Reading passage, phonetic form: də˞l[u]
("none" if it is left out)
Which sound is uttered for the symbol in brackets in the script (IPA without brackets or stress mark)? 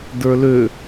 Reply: ø